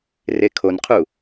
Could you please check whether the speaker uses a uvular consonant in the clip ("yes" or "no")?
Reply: yes